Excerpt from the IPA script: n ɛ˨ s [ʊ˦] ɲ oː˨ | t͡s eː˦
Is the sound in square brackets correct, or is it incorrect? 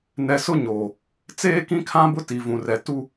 correct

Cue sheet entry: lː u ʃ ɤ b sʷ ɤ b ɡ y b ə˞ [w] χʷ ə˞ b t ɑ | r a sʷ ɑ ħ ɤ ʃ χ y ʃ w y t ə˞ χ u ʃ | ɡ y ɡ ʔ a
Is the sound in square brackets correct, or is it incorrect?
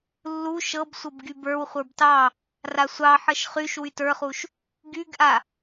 correct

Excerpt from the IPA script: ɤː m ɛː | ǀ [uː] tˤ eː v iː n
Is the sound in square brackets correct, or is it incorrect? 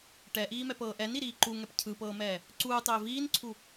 correct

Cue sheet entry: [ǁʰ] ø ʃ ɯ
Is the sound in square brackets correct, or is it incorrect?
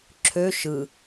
correct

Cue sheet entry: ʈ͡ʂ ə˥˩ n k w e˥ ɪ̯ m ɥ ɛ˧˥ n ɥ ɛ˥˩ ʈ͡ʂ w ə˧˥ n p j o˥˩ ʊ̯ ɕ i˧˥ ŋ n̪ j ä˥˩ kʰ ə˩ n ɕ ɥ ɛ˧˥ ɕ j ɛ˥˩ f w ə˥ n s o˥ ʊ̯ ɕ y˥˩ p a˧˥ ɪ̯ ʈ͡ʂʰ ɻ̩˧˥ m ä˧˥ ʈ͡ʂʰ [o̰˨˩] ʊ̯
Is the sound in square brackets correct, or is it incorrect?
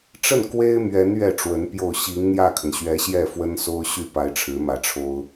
incorrect: o˥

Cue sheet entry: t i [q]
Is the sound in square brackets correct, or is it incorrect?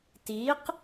correct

